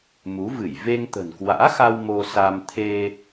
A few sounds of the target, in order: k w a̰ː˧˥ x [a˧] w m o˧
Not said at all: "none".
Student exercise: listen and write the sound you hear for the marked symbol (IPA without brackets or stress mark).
a˧